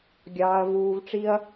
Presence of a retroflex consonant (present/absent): present